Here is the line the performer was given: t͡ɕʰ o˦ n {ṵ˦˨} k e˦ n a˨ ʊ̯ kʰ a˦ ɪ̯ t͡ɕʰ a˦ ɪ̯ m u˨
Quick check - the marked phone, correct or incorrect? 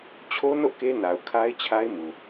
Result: incorrect